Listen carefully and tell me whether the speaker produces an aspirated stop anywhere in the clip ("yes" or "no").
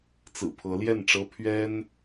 yes